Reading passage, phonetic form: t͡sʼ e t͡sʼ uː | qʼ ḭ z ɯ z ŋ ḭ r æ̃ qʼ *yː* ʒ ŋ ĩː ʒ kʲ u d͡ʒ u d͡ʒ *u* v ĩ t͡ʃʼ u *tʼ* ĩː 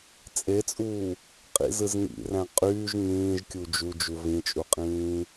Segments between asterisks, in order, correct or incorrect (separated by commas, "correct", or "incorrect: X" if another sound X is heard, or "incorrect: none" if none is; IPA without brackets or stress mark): correct, correct, incorrect: qʼ